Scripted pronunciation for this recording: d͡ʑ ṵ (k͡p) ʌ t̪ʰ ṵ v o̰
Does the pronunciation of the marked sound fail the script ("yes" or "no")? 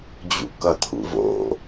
yes